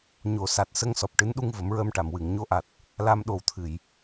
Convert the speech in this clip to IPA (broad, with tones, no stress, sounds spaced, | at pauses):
ɲ o˨˩˨ s a˨˩ t̚ s ə˧ ŋ s ɔ˨˩ p̚ ʈ ɨ˧˥ n ɗ u˧ ŋ v ə˨˩˦ m ɹ əː˧ m ʈ a˨˩˨ m w ɨ˨˩˨ ŋ ɲ o˧ ʔ a˨˩ t̚ | l a˧ m ɗ o˨˩ w t̪ʰ ɨ˨˩˨ j